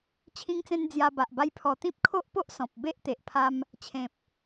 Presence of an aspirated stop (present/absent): present